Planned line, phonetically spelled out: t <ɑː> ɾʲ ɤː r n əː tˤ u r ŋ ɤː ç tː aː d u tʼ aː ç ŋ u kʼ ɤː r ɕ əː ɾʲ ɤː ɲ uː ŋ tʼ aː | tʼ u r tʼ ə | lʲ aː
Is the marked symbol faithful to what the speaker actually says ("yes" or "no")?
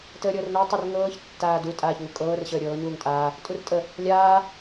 no